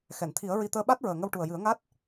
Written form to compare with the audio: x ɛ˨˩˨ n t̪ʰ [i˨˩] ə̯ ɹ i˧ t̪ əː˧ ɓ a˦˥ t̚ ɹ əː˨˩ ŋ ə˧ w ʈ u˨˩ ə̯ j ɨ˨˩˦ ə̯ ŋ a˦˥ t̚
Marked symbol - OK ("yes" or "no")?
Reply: no